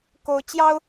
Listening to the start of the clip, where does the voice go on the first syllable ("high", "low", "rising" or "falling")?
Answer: high